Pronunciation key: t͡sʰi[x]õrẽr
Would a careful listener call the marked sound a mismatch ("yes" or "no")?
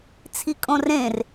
yes